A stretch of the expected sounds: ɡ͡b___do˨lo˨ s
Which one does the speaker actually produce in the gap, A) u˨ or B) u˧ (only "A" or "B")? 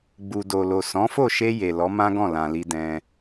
A